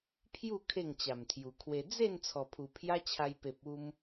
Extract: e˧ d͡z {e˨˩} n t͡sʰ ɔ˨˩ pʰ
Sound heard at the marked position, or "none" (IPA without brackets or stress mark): e˥˧